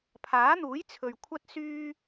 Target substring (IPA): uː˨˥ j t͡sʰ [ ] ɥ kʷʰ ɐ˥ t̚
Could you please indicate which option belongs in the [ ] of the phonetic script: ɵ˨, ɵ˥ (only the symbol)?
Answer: ɵ˨